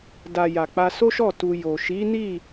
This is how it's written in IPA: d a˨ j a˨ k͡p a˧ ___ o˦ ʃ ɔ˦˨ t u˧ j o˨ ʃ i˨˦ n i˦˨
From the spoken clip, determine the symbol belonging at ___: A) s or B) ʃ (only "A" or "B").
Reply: A